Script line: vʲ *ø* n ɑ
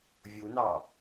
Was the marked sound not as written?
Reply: yes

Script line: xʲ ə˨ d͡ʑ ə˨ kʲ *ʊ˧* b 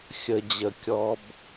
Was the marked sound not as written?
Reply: yes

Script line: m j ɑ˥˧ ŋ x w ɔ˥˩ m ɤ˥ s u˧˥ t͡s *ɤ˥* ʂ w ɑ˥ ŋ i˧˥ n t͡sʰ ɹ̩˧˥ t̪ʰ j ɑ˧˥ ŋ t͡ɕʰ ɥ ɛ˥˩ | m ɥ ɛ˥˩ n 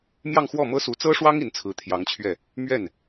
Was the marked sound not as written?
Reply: no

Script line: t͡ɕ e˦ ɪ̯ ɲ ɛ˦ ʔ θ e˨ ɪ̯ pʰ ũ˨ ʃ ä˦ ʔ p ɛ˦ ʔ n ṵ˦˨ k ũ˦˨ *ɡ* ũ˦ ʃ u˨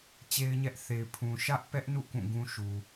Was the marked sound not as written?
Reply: no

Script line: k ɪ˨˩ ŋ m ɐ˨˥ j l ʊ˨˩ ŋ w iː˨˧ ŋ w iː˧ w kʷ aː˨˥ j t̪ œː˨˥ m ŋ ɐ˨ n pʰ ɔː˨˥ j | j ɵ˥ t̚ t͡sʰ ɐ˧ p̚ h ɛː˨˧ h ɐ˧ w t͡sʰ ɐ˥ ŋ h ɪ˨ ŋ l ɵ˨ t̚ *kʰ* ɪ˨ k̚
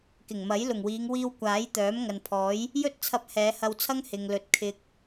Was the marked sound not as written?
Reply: no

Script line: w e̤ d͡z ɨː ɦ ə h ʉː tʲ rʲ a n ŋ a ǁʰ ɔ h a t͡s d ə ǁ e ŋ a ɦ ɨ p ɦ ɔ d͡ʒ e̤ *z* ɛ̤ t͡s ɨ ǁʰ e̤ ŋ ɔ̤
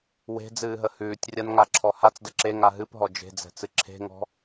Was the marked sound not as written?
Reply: yes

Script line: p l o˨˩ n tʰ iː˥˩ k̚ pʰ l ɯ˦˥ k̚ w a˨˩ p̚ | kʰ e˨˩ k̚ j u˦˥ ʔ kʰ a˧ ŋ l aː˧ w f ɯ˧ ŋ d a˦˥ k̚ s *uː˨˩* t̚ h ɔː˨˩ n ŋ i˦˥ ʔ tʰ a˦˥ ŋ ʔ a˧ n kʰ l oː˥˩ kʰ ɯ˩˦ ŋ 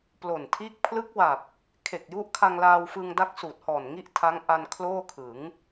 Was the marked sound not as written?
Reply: no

